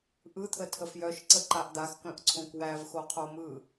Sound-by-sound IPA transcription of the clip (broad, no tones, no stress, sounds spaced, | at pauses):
ʔ ɯ t̪ʰ ə tʰ ə f j œ ʃ ǀ ə ǃ a ʔ d̪ a x k œ̃ ʔ ǀʰ õ k w æ v x o qʰ o m ɯ